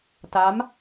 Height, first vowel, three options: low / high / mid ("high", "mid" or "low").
low